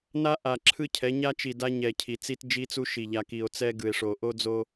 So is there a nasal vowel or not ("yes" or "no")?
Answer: no